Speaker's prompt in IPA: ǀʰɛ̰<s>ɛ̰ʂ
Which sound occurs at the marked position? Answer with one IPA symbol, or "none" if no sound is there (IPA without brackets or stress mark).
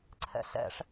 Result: s